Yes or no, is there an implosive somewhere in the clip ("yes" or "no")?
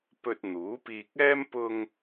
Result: no